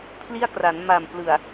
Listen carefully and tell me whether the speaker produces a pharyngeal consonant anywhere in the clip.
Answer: no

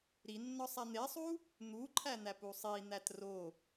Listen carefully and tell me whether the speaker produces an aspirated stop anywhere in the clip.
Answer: yes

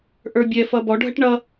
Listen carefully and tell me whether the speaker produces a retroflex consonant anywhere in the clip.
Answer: yes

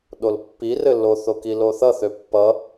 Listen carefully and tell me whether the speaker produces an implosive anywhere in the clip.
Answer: yes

